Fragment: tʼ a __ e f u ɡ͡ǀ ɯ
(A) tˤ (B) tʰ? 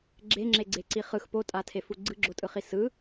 B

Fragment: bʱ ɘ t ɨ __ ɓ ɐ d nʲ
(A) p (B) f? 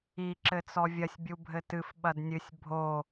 B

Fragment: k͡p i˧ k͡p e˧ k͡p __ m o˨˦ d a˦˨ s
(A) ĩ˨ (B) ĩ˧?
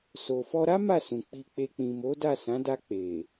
A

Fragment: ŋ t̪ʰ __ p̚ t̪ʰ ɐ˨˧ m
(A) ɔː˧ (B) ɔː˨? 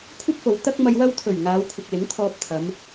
A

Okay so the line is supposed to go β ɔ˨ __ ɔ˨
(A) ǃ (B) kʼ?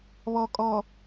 B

